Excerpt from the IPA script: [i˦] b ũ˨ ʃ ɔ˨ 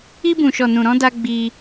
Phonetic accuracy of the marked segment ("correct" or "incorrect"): incorrect